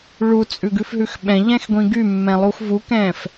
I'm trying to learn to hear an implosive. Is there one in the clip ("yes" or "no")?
yes